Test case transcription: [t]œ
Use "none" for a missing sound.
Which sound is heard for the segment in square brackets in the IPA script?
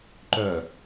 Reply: ǃ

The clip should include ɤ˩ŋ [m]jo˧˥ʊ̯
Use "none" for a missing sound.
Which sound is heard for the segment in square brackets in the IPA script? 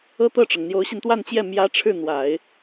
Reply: n̪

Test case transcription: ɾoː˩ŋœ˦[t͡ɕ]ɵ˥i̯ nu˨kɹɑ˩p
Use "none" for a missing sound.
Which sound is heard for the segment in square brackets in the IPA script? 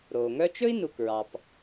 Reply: t͡ʃ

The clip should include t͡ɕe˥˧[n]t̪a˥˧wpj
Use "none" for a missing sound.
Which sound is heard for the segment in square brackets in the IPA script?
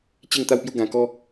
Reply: ŋ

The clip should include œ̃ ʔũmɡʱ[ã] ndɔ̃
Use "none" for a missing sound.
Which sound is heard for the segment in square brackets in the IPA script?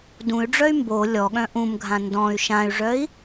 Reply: ã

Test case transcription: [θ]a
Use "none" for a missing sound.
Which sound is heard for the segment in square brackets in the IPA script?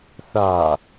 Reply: θ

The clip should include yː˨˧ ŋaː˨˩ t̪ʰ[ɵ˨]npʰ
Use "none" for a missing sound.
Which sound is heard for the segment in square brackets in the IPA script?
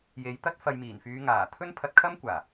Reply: ɵ˥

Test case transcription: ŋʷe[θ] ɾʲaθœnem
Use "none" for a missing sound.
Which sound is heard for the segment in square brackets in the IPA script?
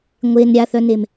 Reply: n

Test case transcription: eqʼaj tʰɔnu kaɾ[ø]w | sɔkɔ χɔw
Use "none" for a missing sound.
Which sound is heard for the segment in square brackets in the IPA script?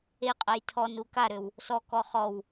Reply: ø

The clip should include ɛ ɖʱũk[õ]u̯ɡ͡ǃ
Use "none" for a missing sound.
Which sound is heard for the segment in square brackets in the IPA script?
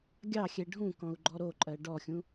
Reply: ɔ̃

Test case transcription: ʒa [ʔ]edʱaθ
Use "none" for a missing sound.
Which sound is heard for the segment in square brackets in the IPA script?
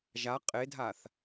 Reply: qʼ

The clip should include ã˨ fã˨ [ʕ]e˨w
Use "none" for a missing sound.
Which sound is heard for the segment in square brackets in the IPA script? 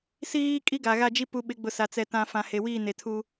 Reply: h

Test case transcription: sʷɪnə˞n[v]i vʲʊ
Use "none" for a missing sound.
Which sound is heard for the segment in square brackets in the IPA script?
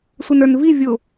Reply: v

